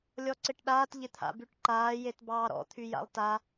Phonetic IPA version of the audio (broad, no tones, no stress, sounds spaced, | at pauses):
lʲ ɔ ǀ ɪ ʈ ɗ aː t ʎ ɪ t̪ʰ a̰ b y ʈ ǃ aː j e t b ɑː ɾ ɔ̰ t̪ʰ y j a̰ lˠ t a